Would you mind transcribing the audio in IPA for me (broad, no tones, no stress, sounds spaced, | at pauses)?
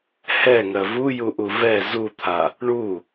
h ɛ ŋ ɜ v u j u ʔ u v ɛ z u t̪ʰ a | ɳ u